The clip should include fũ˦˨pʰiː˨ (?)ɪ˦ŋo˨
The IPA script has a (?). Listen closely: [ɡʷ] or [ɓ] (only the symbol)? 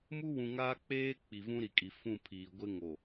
ɡʷ